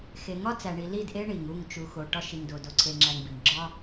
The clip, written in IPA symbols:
xe˨ ŋɒ˦t͡sæ˨ɳi˨ li˦˨dʔe˦ ɳi˨ŋ u˦˨ŋt͡ʃu˨xo˨ ʈɒ˦ʃi˨ŋdo˨ do˦ǀʰe˦ŋ͡ǁæ˦ŋbi˨ŋ ɡ͡ǁɒ˦

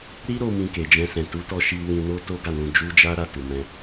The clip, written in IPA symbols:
ɾi˦ɾo˧ mĩ˧ke˨d͡ʒɛ̃˧sɛ̃˨ tu˨˦tɔ˧ʃi˧ wĩ˧no˦to˦ɡa˦˨ nũ˧d͡ʒu˦d͡ʒa˦ɾa˦˨ tu˨mɛ̃˧

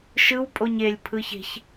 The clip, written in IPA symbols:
ʃɯw pʼoɲelʲ pʰɯçe̤ç

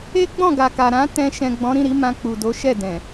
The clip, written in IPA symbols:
e˦ɡ͡bɔ̃˦˨ɡa˨ka˨ ɾã˨˦ tɛ̃˧ ʃɛ̃˨ɡ͡bɔ̃˨˦ɾĩ˦˨ɾi˨˦ mã˧k͡pu˨do˨˦ʃɛ˦˨ dɛ̃˨

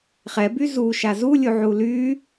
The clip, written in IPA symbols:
χɛby zuʃa zulʲuʕu ly

